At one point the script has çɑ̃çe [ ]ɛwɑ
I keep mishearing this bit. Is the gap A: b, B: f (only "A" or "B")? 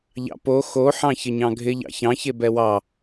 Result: A